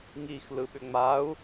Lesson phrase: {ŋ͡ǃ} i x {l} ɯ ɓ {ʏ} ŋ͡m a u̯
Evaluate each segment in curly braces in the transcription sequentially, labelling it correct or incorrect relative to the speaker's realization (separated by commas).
incorrect, correct, correct